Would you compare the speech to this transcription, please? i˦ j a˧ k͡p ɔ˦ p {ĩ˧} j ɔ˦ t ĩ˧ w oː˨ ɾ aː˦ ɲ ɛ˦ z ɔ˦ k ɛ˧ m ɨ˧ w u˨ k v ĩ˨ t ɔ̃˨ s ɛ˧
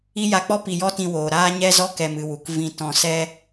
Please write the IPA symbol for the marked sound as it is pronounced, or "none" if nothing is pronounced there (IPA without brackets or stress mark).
i˧